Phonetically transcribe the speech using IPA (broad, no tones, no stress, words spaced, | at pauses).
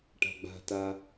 ʈa̤ɡ͡ba̤ta